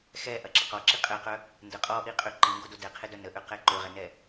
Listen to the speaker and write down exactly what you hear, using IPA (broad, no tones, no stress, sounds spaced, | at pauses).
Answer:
x ɛ ʔ ɐ ǁ ə q ɔ ǁ i qʼ ɛ q œ | n d ə qʼ ɔ ʔ i qʼ ø ǃ i ŋ ɡ o d o d ɛ qʰ ɪ d œ n ə ʔ ø q ɛ ǃ ø ʁ ɛ n ɛ